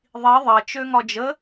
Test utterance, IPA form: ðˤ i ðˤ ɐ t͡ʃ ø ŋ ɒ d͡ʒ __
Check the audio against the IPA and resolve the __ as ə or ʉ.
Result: ə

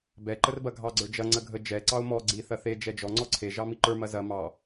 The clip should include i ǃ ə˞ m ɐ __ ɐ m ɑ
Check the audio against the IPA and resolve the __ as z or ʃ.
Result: z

